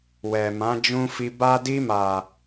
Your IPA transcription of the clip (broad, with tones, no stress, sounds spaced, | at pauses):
w ɛ˨ m ã˨˦ d͡ʒ ũ˧ f i˧ b a˦ d i˧ m a˨